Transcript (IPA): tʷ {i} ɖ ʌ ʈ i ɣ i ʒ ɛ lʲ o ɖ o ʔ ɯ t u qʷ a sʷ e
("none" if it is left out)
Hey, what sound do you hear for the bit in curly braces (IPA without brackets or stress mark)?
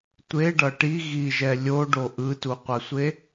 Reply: e